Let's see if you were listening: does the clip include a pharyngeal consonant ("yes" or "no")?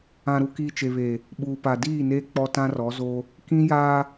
no